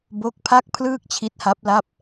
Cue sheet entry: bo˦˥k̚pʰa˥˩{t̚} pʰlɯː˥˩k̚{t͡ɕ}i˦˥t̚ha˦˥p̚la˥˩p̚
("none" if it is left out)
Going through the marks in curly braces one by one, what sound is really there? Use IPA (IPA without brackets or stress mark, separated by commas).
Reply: k̚, t͡ɕʰ